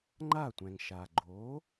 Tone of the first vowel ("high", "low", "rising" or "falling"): falling